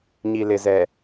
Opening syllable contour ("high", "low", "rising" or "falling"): low